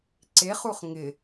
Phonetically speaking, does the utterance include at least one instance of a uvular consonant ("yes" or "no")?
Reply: yes